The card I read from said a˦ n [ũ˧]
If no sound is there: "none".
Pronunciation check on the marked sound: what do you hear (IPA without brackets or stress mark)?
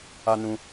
ũ˧